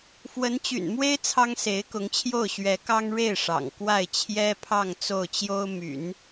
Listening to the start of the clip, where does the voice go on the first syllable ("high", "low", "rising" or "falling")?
rising